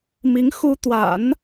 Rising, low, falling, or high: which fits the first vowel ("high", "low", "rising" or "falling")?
rising